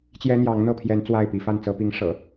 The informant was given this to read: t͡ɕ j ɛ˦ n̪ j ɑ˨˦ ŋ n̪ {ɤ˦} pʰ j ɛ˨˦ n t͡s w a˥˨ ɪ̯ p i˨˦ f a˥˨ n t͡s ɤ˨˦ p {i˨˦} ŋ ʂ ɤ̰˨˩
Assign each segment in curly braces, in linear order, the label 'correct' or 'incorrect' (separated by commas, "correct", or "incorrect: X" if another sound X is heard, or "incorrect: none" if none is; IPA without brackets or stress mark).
incorrect: ɤ˥˨, correct